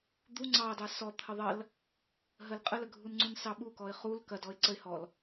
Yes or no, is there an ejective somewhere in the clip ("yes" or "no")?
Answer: yes